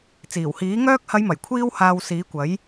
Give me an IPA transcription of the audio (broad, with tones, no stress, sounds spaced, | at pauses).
t͡s iː˨˩ w h iː˨˥ ŋ œː˥ k̚ h ɐ˨˧ j m ɐ˨˩ j kʷʰ iː˧ w h aː˨ w s iː˨˥ kʷ ɐ˨˥ j